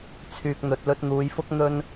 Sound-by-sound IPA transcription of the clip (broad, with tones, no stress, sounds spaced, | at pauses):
t͡sʰ yː˨ k̚ n̪ ɵ˨ t̚ l ɵ˧ t̚ n̪ uː˨˧ j f ʊ˥ k̚ n̪ ɵ˥ n